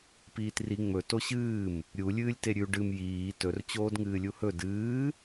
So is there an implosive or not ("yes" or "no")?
no